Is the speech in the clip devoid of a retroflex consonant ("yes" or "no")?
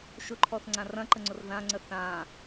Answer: yes